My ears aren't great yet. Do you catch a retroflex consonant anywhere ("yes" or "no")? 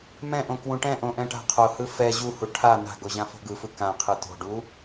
yes